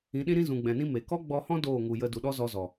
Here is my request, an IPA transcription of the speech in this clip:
ĩ˨˦ɗĩ˦ɾĩ˦ zũ˨ɡ͡bɛ̃˨nĩ˦ me˨ kɔ˦ɡ͡bɔ˧hɔ̃˦ doː˦˨ŋu˨jə˧ du˨ɗɔ˦ zɔ˧zɔ˨

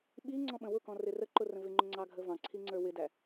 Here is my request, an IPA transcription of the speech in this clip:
ɓi ŋ͡ǀɔ̃ɓə̃wʊkɔ̃ rɪrəǃʊ rə̃vɪŋ͡ǃʊ ŋ͡ǀɑɡʱəvɑ̃ǀʰi ŋ͡ǀə˞wɪdæ

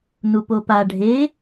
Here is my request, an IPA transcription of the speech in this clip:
nupopa ɖʱe

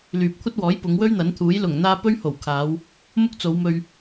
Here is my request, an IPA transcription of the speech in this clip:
lyː˨p̚kʷʰɐ˥t̚wɔː˨˥j pʊ˨˧ŋwɵ˥ɥn̪ɐ˨˥nt̪ʰuː˨˥j lʊ˨˩ŋ n̪aː˧ pɵ˥ɥho˨˩wkʰaː˨˧w | mʊ˥k̚t͡so˨˧wmɵ˧ɥ

